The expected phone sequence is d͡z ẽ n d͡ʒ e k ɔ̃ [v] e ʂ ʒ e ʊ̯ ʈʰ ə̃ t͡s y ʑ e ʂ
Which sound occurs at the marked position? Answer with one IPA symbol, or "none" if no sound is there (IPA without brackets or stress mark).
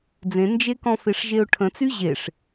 f